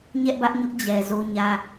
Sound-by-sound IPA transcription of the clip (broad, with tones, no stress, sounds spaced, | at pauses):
ɲ ɛ˦ ʔ b ä˦ ʔ ɲ ʊ˦ ʔ d͡ʑ ɛ˨ z o˦ ɲ ä˦